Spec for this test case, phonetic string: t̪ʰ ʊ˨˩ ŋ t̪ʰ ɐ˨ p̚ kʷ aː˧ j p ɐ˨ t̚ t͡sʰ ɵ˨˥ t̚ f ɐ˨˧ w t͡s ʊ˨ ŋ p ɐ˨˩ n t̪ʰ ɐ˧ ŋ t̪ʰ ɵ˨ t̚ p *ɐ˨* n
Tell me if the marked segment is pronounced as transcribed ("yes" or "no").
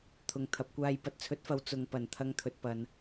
yes